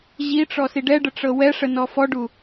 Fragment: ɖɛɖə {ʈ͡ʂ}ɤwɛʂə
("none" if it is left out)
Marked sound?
ʈ͡ʂ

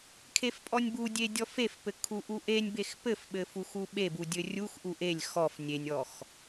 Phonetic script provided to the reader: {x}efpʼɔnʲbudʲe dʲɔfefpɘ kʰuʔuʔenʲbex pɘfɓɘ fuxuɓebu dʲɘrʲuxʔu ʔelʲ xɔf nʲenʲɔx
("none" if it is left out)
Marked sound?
kʰ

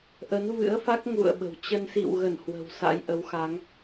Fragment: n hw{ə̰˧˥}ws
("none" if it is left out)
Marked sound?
ə̤˨˩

